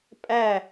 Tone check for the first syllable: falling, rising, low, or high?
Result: falling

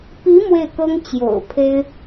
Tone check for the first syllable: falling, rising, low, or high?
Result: rising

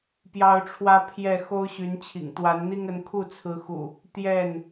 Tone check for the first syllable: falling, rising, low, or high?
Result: high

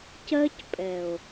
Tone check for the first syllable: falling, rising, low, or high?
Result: high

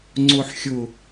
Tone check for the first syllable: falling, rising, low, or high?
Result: low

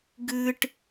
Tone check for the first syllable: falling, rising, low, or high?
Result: high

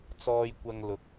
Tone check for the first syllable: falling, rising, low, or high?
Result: low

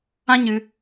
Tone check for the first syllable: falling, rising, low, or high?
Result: high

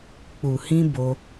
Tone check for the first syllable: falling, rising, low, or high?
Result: low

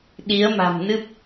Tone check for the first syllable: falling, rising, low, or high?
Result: rising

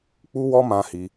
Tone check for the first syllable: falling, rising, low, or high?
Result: high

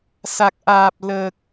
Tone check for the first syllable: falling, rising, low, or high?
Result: low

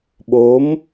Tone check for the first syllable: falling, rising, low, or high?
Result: rising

